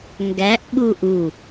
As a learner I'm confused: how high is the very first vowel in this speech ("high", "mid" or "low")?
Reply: low